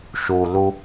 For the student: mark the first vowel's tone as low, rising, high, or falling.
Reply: low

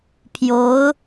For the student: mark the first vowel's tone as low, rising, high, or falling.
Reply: rising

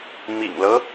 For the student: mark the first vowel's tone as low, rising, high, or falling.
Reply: low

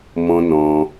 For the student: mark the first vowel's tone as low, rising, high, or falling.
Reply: high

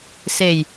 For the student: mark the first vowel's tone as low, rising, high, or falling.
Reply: low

